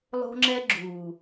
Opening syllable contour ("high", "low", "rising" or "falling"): high